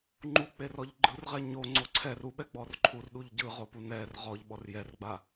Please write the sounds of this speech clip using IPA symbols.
ŋ͡ǃ u k͡p e r ɔ ʎ ɡ͡ǃ ɯ r ʁ ɛ ɲ o ŋ͡ǀ o ǀʰ ɛ r u ɓ ɛ ɡ͡b ɔ r ǃʰ u r ɗ u ʎ ɟ ɯ ʁ o p u n ɛ r ʁ ɔ ʎ ɓ ɔ r j ɛ r ɡ͡b a

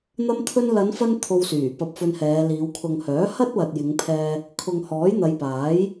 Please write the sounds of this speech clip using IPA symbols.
n̪ ɐ˥ m t̪ʰ ɵ˥ n l ɐ˨˧ n f ɐ˥ n t̪ʰ o˧ w s yː˨˩ p ɐ˧ p̚ f ɵ˧ n h ɛː˨˧ l iː˨˧ w kʰ ʊ˨ ŋ h œː˨˥ h ɐ˥ t̚ w ɐ˨ t̚ j ɪ˨˧ ŋ pʰ ɛː˧ | kʰ ʊ˨ ŋ h ɔː˨˥ j n̪ ɐ˨˧ j p aː˨˥ j

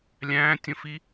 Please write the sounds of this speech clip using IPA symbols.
lʲ æ̃ː tʲ ə̃ f i

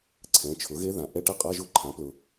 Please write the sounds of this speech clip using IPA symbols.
ǀʰ ɛ̃˩˥ t͡ʃʰ ʊ˩˥ ɣ e˦˥ ð ã˩˥ ʔ ɛ˧˥˧ ʈ ɛ˦˥ qʼ a˧˥˧ ʒ ʊ˦˥ ǃʰ ã˩˥ p l ʊ˨

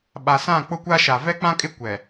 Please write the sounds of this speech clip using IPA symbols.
ɓ a˨ s ã˦˨ k͡p ʊ˦ kʷ a˦ ʃ a˨ v ɛ˦ k͡p ã˦ kʼ ɪ˦ kʷ ɛ˨

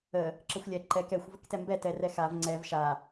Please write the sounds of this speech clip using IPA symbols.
ə | ǁ ə xʷ lʲ ɛ ǃ ɛ k ɛ xʷ v ə k t ɛ m b ɛ t ɛ r ɛ x a v ŋ͡ǀ ɛ v ʃ a

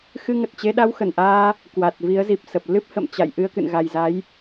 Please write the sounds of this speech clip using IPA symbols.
x ɨ˧ ŋ ə˨˩ t̚ t͡ɕ e˧ ɗ a˧ w x ə˧˩ n ʔ aː˧ | k w a˨˩ t̚ v i˨˦ ə̯ z i˨˩ p̚ s ə˨˩ p̚ l ɨ˦˥ p̚ h ə̰˧˨ m t͡ɕ a̰˧˨ j ʔ ɨ˧ ə̯ k ɨ̰˧˨ n ɣ a˨˩ j z a˨˦ j

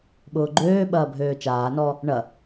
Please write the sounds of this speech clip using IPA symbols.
ɓ ʊː ɡ͡ǃ øː ɓ ɐː bʱ øː t͡ʃ aː n ɔ | ɳ ɐ

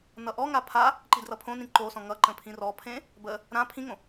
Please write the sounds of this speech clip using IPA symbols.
n ʌ ʔ ɔ ŋ a pʰ a | ǃ i d r ʌ pʰ õ n ĩ ǃ o s ɔ̃ ŋ ʌ ǃ ə̃ pʰ ĩ r ɔ pʰ ẽ | b ə | ɾ ã pʰ ĩ ŋ õ

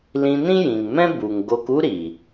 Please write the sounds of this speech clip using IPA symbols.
l ĩ˧ n ĩ˦ j ĩ˨ ŋ m ɛ̃˦ b u˨ ŋ ɡ o˧ k u˦ ɾ iː˨

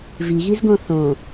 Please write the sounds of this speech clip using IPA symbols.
v i ɣ i z ɡ õ θ õ

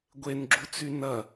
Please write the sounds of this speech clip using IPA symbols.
ɡʷ e n ɡ͡ǁ u t͡s y n ɐ

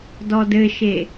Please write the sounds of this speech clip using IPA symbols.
d ɔ d ɘ ʃ e

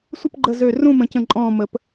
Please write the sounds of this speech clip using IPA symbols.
sʷ ə˥˨ p ɡ͡ǃ ə˧˩ z ø˧˩ r ũ˥˨ m ə̃˨˩˦ c ə̃˧˩ ǃʼ ɔ̃ː˧˩ m ə˨˩˦ p

